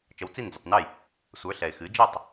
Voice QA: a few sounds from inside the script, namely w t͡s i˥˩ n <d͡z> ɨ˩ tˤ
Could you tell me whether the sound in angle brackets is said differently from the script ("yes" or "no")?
no